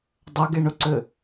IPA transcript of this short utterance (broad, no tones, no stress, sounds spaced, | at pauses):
dˤ ɐ ɡ e ɳ ʊ ǀ ʏ